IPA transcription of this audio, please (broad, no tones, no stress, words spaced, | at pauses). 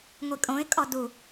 ŋʷikʼõɪ̯ kʼɔdu